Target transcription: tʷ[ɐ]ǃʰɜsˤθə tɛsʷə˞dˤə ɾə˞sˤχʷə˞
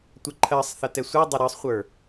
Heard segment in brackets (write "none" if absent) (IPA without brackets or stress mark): ɐ